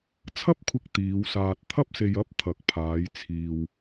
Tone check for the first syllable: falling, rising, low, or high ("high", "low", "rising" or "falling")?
high